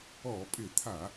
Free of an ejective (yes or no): no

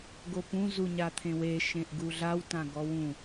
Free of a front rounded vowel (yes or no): yes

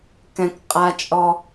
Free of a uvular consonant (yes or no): no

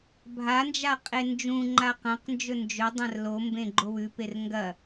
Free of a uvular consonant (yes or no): no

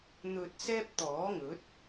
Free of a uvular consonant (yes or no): yes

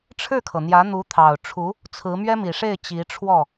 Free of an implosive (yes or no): yes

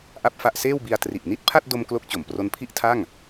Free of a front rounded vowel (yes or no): yes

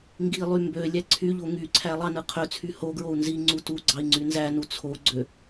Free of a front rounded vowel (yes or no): no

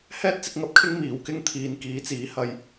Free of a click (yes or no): yes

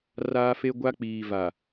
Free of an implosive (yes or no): yes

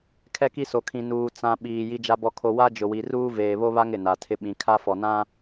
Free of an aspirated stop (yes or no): no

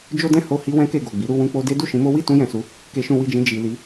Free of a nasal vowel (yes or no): no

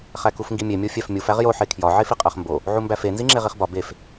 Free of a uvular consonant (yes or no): no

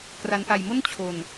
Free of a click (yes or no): yes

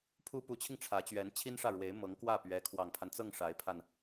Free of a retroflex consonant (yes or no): no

